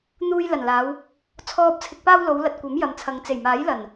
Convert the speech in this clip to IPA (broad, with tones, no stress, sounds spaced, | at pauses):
n̪ uː˧ j l ɐ˨˩ n l aː˨˧ w | t͡sʰ ɔː˨ p̚ t͡sʰ ɪ˨ k̚ p aː˧ w l o˨˧ w l ɐ˨ t̚ kʷ ɐ˨˥ m j ɐ˨ m t͡sʰ ɐ˨ ŋ t͡s e˨˩ j m aː˨˥ j l ɐ˨˩ n